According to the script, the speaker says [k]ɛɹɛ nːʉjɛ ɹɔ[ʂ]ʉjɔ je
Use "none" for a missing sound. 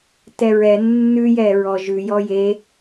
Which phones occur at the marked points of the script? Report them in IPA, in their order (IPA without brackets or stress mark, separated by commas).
t, ʒ